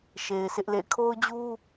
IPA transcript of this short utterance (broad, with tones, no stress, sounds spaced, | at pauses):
ʃ e˨ ɪ̯ s ɪ˦ ʔ l ḛ˦˨ ɪ̯ kʰ o˦ ʊ̯ d͡ʑ u˦